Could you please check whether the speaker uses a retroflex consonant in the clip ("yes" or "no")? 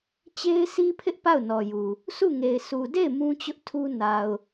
no